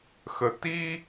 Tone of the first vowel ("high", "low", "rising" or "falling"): low